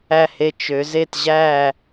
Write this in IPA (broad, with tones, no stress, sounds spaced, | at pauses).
æ˥˨ h e˦ t͡ʃ ø˨˦ z e˥˨ t ʑ æ˥˨